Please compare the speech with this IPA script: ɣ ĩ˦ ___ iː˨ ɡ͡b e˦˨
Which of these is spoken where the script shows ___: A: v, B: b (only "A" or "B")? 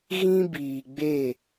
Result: B